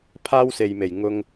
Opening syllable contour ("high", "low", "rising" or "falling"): high